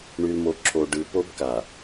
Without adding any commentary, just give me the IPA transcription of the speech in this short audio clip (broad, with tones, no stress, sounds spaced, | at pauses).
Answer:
ɳ y˨ l m o˨ ǁʰ o˨ ɖ ɯ˨ p o˦ b k a˨